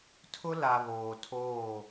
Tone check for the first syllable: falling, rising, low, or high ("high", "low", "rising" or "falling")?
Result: high